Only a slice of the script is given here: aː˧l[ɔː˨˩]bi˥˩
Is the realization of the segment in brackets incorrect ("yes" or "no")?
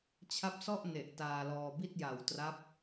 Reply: yes